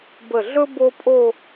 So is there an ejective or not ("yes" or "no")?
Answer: yes